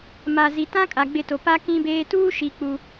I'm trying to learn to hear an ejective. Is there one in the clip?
yes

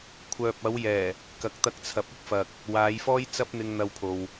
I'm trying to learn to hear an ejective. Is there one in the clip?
no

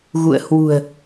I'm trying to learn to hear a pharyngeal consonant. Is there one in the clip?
no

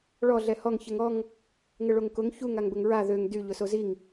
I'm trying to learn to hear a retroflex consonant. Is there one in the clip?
yes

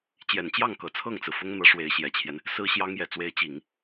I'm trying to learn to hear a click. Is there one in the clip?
no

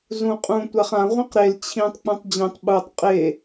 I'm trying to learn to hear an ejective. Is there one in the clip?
yes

